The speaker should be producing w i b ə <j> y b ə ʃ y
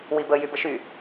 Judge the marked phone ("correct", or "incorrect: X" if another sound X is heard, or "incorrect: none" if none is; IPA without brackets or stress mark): correct